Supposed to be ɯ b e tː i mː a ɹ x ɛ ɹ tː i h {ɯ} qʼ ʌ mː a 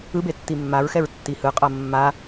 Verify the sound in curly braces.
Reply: correct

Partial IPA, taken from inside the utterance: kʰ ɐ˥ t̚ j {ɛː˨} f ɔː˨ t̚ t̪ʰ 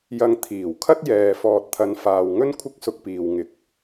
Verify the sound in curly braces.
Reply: correct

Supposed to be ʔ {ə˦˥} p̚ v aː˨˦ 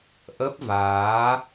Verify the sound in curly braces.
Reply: correct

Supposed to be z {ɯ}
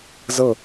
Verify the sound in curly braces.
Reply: incorrect: ɤ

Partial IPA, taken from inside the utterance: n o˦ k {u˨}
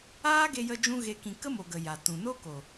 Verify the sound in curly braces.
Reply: incorrect: o˨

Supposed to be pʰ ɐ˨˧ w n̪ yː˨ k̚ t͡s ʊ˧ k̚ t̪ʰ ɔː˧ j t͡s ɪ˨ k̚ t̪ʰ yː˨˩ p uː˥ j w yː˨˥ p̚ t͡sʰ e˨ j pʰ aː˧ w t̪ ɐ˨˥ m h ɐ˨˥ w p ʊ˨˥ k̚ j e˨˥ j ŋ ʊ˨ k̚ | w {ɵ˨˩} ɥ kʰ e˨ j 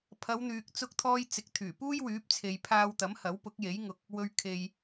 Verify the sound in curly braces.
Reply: incorrect: ɵ˨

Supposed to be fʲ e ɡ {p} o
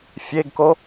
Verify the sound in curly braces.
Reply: incorrect: k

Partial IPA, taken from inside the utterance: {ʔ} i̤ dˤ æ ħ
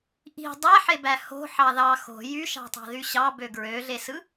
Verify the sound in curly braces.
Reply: correct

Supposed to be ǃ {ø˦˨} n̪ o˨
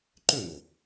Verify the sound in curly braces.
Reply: correct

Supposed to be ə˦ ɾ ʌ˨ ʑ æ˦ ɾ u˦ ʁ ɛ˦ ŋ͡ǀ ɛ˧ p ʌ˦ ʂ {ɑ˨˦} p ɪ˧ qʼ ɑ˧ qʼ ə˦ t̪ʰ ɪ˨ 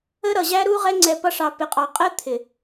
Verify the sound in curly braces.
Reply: incorrect: ɑ˧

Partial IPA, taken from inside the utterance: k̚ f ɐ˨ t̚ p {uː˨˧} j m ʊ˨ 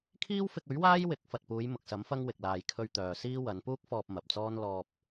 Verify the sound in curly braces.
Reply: correct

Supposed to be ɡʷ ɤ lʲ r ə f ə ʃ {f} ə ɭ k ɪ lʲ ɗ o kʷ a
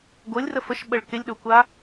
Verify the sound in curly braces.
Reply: incorrect: ɓ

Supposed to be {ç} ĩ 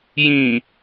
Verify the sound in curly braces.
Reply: incorrect: j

